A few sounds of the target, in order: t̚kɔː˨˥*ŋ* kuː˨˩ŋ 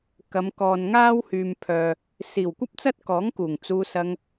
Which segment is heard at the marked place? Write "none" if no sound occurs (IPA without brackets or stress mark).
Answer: ŋ